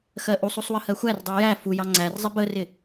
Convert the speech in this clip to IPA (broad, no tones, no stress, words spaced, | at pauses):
xɜʔusˤusˤ wəhɜxʷærdˤu jæ fujɑ ŋ͡ǀærzˤɪ bərɪ